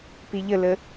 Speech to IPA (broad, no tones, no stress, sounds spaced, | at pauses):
p i ʎ ə l ə